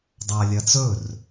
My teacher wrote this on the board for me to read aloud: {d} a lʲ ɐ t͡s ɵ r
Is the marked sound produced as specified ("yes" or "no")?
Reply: no